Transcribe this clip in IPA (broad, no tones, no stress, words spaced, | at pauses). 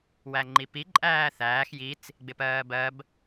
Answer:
wæŋ͡ǃipi ǃʼæːθæːx jit͡s | ɡ͡bɪpɜːbɜb